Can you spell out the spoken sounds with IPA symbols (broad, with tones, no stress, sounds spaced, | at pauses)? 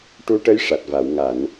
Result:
ʈ u˧˥ ʈ ə˧˥ j ʂ a˨˩ t̚ v a˨˩˨ w ŋ a˨˩˨ n